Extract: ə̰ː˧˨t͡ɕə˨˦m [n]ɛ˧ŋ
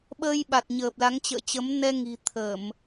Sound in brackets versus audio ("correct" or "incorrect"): correct